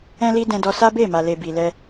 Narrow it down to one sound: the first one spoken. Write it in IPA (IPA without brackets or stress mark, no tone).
ɛ̃